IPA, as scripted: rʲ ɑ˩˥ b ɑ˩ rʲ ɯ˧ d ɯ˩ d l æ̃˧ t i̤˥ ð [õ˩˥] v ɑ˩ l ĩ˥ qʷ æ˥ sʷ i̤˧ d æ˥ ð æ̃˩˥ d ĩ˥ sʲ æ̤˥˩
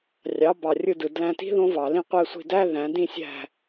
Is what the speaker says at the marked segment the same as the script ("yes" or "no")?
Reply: no